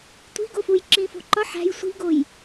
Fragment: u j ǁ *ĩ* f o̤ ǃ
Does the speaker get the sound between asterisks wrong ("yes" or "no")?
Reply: no